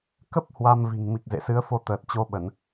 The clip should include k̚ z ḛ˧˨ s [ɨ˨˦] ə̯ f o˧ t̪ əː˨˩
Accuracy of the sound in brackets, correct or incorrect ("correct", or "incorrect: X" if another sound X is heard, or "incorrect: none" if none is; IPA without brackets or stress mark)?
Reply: correct